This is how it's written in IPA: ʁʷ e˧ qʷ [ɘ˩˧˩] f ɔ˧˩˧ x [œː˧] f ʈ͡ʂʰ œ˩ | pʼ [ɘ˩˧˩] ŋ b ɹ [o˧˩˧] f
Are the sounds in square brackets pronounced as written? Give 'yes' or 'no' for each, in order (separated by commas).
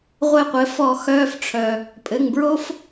yes, yes, yes, no